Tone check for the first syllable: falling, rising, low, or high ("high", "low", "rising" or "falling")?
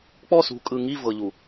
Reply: falling